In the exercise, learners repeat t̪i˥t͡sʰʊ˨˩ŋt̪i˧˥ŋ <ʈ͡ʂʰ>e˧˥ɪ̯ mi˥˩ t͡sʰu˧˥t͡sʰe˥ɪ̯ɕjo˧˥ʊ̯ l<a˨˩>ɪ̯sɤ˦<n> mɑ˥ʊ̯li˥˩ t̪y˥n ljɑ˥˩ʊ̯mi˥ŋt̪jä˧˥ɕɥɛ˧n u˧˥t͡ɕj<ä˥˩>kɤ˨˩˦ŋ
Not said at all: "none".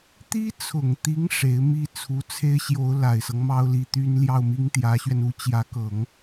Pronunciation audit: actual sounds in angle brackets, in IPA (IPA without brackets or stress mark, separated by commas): ʂ, a˨˩, ŋ, ä˧˥